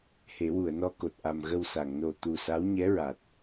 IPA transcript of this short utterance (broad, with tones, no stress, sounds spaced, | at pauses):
h e˨˩˦ w u˨˩˨ ə̯ n ɔ˧ k o˨˩ t̚ ʔ a˨˩ m ɣ ə˧ w s a˨˩˨ ŋ n o˨˩ t̪ u˨˩ s a˧˥ w ɲ ɛ˧˥ ɹ a˨˩ t̚